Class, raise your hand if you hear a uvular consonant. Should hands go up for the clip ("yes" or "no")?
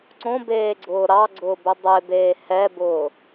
no